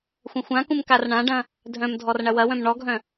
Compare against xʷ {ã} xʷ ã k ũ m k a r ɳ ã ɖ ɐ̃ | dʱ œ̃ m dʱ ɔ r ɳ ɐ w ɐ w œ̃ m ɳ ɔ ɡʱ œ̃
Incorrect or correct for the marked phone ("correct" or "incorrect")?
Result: incorrect